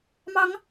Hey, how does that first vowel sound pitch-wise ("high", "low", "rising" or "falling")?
rising